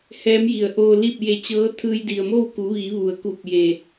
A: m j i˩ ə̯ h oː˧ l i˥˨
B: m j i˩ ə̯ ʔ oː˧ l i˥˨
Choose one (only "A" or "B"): B